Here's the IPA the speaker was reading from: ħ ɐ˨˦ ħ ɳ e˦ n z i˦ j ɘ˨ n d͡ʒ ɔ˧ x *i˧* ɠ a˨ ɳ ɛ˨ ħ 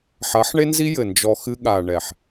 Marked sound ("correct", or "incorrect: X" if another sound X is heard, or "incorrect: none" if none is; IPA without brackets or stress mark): incorrect: ɨ˧